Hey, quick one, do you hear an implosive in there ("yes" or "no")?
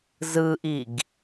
no